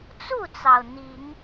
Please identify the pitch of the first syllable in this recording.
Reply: falling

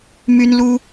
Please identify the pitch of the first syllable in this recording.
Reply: high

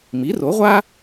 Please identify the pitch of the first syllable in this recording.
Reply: rising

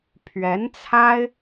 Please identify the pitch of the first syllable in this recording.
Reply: rising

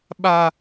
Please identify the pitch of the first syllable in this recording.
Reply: low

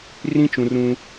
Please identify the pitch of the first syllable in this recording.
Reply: high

